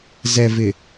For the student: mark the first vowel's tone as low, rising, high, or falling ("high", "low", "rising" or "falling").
low